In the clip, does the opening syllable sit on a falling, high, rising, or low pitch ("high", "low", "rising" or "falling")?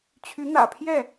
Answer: rising